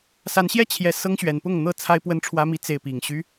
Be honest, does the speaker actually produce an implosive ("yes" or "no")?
no